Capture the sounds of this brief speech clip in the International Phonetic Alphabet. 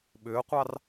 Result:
ɓ ʏː qʷ ɑ r

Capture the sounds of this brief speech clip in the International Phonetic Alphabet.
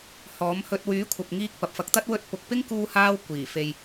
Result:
h ɔː˨˥ m h ɵ˧ t̚ w yː˨˥ kʷʰ ɐ˨ p̚ ŋ iː˧ k̚ p ɐ˨ p̚ f ɐ˧ k̚ t̪ ɐ˥ t̚ w ɵ˧ t̚ p ʊ˨ k̚ p ɪ˥ ŋ k uː˧ h aː˧ w kʷ iː˨˩ f e˨ j

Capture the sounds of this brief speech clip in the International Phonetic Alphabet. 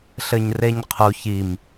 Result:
ɬ ɘ ɲ r e ɲ qʰ u ç i m

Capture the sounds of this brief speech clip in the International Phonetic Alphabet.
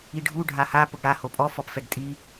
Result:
i ɖʱ u ɖʱ a h a p ʊ ɡ ɽ a h o pʼ ɔ f ɔ p f ɛ ɡ tʼ i

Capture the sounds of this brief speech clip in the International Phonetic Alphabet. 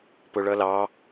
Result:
p ʊ ɭ ʌ l ɑ

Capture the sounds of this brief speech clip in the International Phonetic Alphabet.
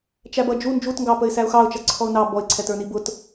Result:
t͡ʃ æ b ʌ d͡ʒ u n d͡ʒ u t ŋ ɡ ɑ p ə ɪ̯ s æ ʊ̯ x ɑ ʊ̯ t͡ʃ ʌ ǀʰ ɔ ʊ̯ n ɑ b ɔ ɪ̯ ǀʰ ɛ t ə˞ n i b ʊ t

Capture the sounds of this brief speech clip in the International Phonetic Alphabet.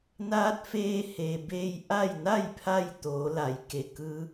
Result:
n aː˧˥ t̚ f eː˧ h e˩ b e˧ j ʔ a˥˨ j n a˥˨ j pʰ a˥˨ j t̪ oː˩˧ l a˩˧ j k e˩ k ɯː˧˥

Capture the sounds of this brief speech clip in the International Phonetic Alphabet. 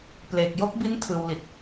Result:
p l e˨˩ k̚ j o˦˥ k̚ b i˦˥ n tʰ ɯː˧ w l i˨˩ t̚

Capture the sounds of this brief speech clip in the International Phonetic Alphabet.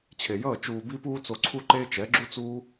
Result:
t͡ɕʰ e˨ j ʌː˦˨ t͡ʃ uː˨ b i˧ p uː˧ t͡s o˨ ǀʰ u˧ ǃ eː˧ t͡ʃ ɛ˨˦ ɡ͡ǁ u˦ t͡s uː˦

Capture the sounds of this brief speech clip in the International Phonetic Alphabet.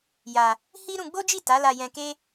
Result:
j a˧ | h i˦ ɾ ũ˧ ɡ͡b o˦ d͡ʒ i˦˨ t a˨˦ l a˧ j ɛ̃˧ k e˦

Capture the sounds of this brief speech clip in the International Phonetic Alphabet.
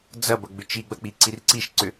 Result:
d͡z ɐ b ɐ ɡ͡b ʏ t͡ʃ i ɡ͡b ɐ k͡p i ǀ i r ǀ i ʃ ǀ ʏ

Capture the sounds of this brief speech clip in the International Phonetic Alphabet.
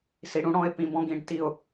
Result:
s i˧˥ ɽ ũ˧˥ ɽ ɔ̃˧˥˧ ɪ̯ p ĩ˧˥˧ b ɔ̃˥ ɡ ĩ˧˥˧ ɖ t i˥˨ ʊ̯

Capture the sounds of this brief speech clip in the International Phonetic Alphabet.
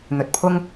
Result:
n̪ ɵ˨ t̚ pʰ ʊ˥ ŋ

